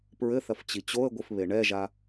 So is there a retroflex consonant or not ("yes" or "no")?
yes